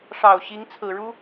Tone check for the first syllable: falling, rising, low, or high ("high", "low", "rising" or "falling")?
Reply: low